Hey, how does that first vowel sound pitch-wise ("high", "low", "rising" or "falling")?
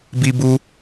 high